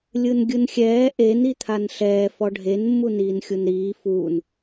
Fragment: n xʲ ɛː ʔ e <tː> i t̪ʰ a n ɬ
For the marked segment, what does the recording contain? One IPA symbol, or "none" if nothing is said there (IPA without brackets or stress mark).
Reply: n